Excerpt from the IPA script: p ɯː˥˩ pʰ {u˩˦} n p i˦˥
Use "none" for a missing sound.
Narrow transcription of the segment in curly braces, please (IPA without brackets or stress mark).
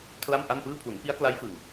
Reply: u˩˦